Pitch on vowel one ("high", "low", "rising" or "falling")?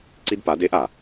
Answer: high